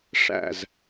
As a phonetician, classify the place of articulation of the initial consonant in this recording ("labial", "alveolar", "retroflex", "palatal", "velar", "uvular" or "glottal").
retroflex